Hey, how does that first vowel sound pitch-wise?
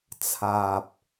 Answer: low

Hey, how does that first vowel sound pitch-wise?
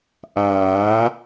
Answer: rising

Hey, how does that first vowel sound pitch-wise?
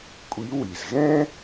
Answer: rising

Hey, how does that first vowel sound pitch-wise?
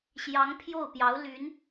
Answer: rising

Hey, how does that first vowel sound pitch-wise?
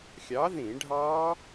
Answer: rising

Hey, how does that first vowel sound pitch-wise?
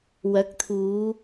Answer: rising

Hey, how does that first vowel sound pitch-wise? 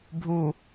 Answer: low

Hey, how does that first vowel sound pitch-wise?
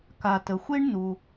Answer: low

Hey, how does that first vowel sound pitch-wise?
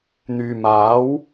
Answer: low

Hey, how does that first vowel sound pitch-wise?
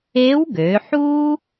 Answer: rising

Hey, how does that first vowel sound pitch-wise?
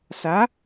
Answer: rising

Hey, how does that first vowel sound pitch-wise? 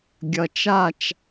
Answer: low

